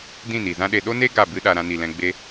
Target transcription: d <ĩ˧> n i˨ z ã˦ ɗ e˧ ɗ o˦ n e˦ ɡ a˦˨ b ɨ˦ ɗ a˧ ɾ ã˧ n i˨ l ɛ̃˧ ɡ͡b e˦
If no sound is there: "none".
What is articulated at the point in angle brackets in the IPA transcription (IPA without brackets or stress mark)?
ĩ˦˨